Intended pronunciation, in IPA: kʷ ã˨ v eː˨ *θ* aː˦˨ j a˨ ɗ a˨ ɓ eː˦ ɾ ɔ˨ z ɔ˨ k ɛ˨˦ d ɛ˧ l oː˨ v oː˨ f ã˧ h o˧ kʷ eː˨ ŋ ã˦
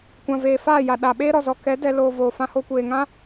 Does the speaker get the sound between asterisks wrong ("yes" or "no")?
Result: yes